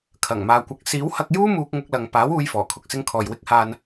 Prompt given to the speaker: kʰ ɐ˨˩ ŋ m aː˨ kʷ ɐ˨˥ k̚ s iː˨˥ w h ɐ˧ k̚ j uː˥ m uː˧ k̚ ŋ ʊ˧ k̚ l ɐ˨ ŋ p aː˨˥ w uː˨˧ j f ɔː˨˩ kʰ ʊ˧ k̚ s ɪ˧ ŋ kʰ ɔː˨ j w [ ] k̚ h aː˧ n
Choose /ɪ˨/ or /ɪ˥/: ɪ˥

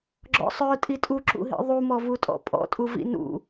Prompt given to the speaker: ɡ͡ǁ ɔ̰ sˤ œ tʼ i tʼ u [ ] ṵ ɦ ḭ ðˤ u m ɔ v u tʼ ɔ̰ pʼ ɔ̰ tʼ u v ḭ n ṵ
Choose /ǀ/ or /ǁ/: ǁ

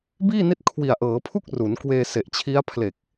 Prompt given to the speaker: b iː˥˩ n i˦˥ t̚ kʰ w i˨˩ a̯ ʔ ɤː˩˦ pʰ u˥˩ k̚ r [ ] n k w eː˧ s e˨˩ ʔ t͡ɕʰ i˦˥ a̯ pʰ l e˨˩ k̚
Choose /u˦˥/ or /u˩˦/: u˩˦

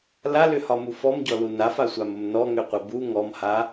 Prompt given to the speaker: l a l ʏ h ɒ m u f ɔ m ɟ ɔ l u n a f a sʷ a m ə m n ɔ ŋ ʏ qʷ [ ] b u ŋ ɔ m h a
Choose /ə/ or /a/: ə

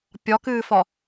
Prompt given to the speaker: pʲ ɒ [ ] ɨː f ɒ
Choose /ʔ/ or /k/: k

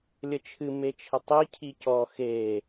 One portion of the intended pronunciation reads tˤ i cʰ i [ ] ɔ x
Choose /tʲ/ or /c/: c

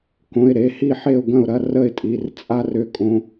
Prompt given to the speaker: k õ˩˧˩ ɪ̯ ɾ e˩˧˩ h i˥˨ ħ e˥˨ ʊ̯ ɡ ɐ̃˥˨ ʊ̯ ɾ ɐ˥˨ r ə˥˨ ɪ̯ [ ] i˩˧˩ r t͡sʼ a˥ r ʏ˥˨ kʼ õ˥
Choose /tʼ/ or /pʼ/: tʼ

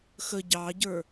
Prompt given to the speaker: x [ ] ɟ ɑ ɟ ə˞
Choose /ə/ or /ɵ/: ə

